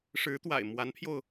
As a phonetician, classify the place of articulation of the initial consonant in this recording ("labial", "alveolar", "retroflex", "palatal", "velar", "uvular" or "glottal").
retroflex